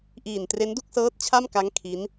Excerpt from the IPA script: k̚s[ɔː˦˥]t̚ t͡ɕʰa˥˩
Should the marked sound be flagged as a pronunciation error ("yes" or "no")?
yes